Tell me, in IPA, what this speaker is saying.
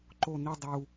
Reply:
ǃ o n i dˤ u

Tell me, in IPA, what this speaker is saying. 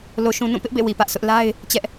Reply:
l o˨ ʃ ũ˨ n ũ˦˨ p ɪ˦ ʔ b ḛ˦˨ w i˨ p ä˦ ʔ sʰ ʊ˦ ʔ l a˦ ɪ̯ | t͡ɕ ɛ˦ ʔ

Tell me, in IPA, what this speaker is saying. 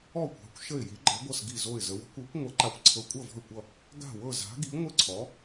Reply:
ɔ˥˧ kʷ a̤˧˥ kʷ ʃ ə˥˧ ɪ̯ j i˧˥ ɡ͡ǃ ʌ˧˥ ɡʷ ʌ˥˧ s ɡ i˥˧ z o˥˧ ɪ̯ z ə˧˥ w ə̤˧˥ kʷ ɤ˧˥ kʷ ŋʷ ʌ˧˥ ǃ a˧˥ kʷ ǀʰ ɤ˧˥ kʷʼ ʌ˥˧ v ɔ̤˥˧ ɪ̯ kʷ ʌ˥˧ | ɡ a̤˥˧ w ɤ˥˧ z a̤˧˥ ɡ i˧˥ ŋʷ ɘ˥˧ ǀʰ ɔ˧˥

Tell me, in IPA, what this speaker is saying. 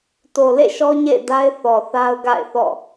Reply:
t o˨ l ḛ˦˨ ʃ ɔ˦ ɲ ḛ˦˨ ɪ̯ d a˦ ɪ̯ θ ɔ˨ θ a˦ ʊ̯ ɡ a̰˦˨ ɪ̯ θ ɔ̰˦˨

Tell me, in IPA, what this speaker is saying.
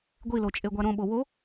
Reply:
ɡʷ i l o t͡ʃʼ e ɡʷ a ɾ õ ɓ o w o

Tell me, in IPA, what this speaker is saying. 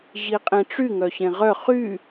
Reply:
ʑ i qʼ ẽ ʈ͡ʂ y ŋ œ ɕ ẽ ʁ œ χ y

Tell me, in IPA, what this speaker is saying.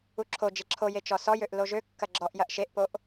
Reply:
u ǁʰ o d͡ʒ e ǁʰ o j e t͡ʃ ɔ s ɔ j ø ʔ l o ʒ ø kː ɐ ɡ͡ǁ ɔ ʔ j ɐ ʔ ʃ e ʔ p o ʔ

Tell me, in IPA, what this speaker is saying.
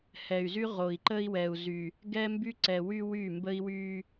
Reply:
h ɛ˨ y̯ z y˦ ʁ o˨ i̯ ǃ ə˦ i̯ w ɛ˨ u̯ z y˨ | ɡ ɛ˦ m b y˦ ǀ ɛ˨ w y˦ w y˦˨ m b ə˦ i̯ w y˦

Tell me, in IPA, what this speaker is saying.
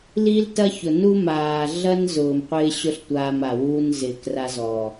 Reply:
l i˦ l t ɐ˦ ç ʊ˨ n u˦ m aː˨ ɮ ɐ˦ n z ʊː˨ m qʷ ɪː˦ ɕ ʊ˦ ɬ tʷ aː˦ m a˨ w uː˦ n z ɪː˨ k r a˦ z ɔː˨

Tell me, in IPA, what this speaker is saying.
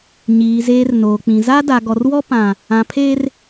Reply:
ɲ iː˨ z eː˨ r n oː˨ k͡p ĩ˨ z a˦ d a˨ ɡ ɔ˨ r w ɔ˦ p ã˨ | ã˨ pʰ eː˦ r

